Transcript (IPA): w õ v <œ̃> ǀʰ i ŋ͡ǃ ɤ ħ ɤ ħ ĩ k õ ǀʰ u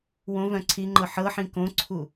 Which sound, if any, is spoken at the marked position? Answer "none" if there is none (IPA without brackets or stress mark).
œ̃